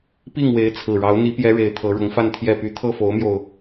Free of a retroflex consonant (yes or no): no